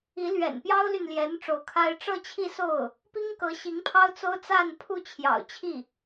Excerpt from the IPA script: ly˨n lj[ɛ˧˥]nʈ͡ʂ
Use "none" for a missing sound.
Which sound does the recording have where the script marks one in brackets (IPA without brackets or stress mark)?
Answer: ɛ˧˥